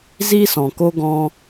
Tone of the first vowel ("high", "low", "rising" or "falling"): high